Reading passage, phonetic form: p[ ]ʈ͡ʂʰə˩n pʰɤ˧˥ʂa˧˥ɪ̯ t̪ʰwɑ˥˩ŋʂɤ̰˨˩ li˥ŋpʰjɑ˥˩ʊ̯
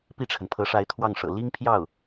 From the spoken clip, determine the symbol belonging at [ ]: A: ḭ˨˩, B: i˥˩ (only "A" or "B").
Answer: B